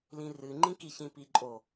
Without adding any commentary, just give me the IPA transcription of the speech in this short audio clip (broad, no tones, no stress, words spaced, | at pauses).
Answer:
lĩrɨŋ͡ǃĩki çĩpiǃʼo